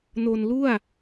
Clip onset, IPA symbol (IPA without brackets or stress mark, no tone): n